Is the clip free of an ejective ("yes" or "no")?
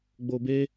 yes